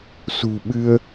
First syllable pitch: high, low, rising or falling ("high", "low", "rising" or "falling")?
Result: low